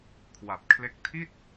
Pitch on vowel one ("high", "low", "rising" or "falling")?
low